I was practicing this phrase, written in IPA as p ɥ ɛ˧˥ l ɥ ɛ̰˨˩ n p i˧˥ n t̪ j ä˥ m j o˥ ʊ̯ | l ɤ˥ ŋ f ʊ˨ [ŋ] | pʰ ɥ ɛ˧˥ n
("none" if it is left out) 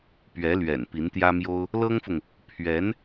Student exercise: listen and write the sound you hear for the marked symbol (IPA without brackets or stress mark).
ŋ